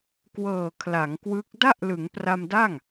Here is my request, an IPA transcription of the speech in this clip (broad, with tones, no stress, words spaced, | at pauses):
kwɤː˨˩ kʰla˩˦ŋkwɯ˦˥k̚ da˥˩ʔlɯ˩˦ŋpra˧mda˥˩ŋ